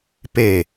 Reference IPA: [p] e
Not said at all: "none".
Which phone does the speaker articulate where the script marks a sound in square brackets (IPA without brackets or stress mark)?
p